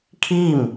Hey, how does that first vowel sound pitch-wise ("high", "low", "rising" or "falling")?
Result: falling